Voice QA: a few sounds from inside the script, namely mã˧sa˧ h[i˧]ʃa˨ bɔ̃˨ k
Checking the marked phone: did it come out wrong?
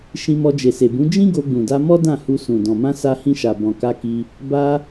yes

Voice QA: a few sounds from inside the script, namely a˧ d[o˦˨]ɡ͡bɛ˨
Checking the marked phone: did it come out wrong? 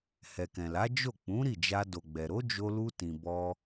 yes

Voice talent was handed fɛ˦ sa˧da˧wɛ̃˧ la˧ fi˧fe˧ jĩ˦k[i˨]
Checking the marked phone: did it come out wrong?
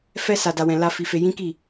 yes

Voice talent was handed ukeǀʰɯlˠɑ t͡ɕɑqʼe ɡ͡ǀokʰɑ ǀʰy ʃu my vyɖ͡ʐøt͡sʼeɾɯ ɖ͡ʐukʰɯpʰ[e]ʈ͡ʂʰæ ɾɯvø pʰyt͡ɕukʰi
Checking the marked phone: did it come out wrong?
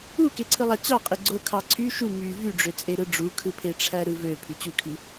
no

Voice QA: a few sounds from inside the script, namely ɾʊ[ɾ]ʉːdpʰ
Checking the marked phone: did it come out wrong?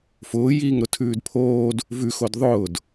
yes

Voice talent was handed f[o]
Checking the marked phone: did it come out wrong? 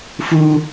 yes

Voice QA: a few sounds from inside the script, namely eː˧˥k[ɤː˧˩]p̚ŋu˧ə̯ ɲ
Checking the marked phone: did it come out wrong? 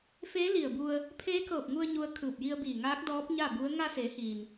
no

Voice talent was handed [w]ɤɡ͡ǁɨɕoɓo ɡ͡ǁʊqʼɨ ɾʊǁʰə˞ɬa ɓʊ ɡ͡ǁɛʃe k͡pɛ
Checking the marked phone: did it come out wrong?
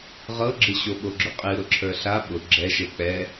yes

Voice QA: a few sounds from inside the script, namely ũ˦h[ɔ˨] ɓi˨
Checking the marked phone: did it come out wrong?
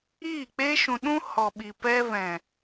no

